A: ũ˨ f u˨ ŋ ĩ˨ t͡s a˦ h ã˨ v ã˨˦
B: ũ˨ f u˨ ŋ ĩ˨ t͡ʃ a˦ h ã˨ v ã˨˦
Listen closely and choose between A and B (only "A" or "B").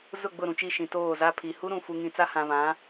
A